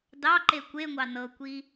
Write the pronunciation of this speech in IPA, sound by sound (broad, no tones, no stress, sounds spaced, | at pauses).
d ɑ ǃ e kʷ e ŋʷ ɑ n ɤ kʷ i